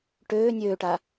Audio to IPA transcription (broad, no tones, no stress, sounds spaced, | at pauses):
ʈ øː nʲ øː ʈ a